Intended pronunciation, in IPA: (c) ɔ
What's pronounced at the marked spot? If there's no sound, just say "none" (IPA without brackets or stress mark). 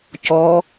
c